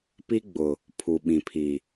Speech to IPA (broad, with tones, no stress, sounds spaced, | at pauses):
p i˦ ɡ͡b ʊ˨ | pʰ u˨ ɓ ĩ˨ pʰ i˨